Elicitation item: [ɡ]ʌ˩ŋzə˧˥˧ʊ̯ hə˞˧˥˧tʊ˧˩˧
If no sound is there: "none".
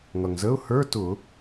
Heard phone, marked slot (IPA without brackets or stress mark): ŋ